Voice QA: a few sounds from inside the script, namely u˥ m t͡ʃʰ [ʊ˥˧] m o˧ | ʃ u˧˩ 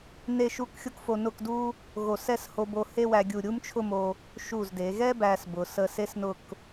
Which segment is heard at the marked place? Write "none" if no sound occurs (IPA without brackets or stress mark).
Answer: ʊ˥˧